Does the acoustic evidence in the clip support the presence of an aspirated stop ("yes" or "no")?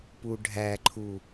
yes